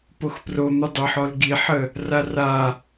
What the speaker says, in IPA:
p o x p r o n̪ u dˤ ə ħ ɔ l ɡ i ħ ə | r a r a

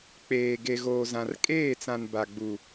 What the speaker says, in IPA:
k͡p eː˨ ɡ e˨ ɣ oː˨ z ã˨ r kʼ eː˦˨ t͡s ã˨ n b a˨ ɡ͡b u˨

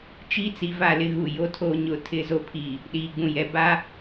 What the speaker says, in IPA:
t͡ʃ iː˦ t͡s i˨ v a˦˨ l ɪ˦ ɣ u˨ j o˦ tʰ oː˦ ɲ ʊ˨ tʰ ɪ˦ z o˦ pʰ iː˨ | ɗ iː˨ ɡ͡b ũ˨ j ɛ˨ b a˦

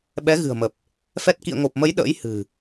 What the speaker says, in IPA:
ɓ ɛ˨˦ ɣ ɨ̤˨˩ ə̯ m ə˨˩ p̚ | f ɛ˦˥ t̚ k ḭ˧˨ ə̯ ŋ o˨˩ p̚ m ə˨˦ j ɗ ə̰ː˧˥ j h ɨ̤˨˩

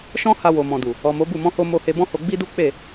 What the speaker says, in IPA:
ʃ ɔ̃˦ h a˧ w o˨ m ɔ̃˨ d u˨ | ɔ˨ m o˨˦ b u˦˨ m ɔ̃˧ h o˧ m o˧ h e˧ b ɔ̃˦ h o˧ ɡ͡b i˦ d u˦ k͡p e˦˨

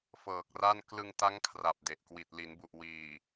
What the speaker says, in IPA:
f ɤː˨˩ k̚ r a˥˩ n k l ɯ˧ ŋ t a˦˥ ŋ kʰ r a˨˩ p̚ d e˨˩ ʔ k w i˨˩ t̚ l i˩˦ n b u˨˩ ʔ w iː˨˩

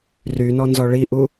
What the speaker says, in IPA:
r y n ɔ n z ɔ ɭ i ʔ u

